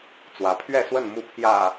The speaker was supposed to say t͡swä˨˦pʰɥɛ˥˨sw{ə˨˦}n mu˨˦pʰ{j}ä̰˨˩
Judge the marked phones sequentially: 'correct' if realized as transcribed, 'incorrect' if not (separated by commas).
incorrect, correct